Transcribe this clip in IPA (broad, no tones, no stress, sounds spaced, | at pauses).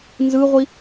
n z ɯ ʁʷ i